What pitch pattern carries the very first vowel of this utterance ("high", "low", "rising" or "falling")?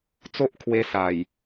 high